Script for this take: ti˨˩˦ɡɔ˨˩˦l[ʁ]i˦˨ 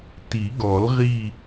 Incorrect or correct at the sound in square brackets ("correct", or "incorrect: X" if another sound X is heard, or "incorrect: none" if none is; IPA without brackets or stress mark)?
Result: correct